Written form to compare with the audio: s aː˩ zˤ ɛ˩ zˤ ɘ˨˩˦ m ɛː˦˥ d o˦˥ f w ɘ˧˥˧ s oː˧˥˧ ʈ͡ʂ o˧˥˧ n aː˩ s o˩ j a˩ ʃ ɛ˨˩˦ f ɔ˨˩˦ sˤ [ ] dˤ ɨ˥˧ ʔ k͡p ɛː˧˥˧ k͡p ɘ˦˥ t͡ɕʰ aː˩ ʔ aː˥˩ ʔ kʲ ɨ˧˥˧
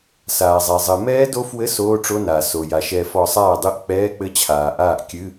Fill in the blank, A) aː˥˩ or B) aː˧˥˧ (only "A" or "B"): A